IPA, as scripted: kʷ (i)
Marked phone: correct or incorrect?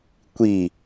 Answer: correct